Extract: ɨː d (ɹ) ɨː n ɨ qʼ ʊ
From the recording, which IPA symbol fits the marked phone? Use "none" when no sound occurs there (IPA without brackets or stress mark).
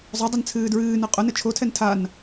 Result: ɹ